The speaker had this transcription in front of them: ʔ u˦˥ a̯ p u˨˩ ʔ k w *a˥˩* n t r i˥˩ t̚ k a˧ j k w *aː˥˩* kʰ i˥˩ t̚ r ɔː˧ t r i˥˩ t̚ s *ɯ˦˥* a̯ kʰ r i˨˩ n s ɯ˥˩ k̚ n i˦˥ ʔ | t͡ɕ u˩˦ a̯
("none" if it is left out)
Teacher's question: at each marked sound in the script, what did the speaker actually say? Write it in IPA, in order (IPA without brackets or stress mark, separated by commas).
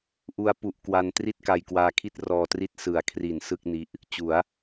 a˧, aː˧, ɯ˨˩